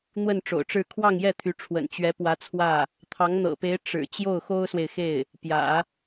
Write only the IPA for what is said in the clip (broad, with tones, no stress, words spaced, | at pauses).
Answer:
n̪wə˥˩n ʈ͡ʂo̰˨˩ʊ̯ʈ͡ʂɻ̩˥˧ kʰwɑ˥˧ŋjɛ˥˩ t̪ʰy˧˥ʈ͡ʂʰwə̰˨˩n t͡ɕɥɛ˧˥pwä˧˥t͡sʰwä˥˩ | t̪ʰɑ˧˥ŋn̪ɤ̰˨˩pe˧˥ɪ̯ ʈ͡ʂɻ̩˨˩ t͡ɕjo˥˩ʊ̯xo˥ʊ̯swe˨ɪ̯xe˥˩ɪ̯ | pjä̰˨˩˦